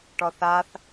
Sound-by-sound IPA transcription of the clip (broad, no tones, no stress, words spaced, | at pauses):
ʈɔθaθ